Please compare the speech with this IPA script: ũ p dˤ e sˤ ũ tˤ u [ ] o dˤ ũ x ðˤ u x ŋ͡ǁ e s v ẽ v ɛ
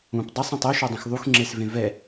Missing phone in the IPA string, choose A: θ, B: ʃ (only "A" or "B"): B